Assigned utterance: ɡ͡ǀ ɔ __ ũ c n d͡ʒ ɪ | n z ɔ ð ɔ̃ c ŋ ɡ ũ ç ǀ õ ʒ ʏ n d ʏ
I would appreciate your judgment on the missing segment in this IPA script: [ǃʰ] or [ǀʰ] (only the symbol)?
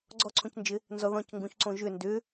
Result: ǀʰ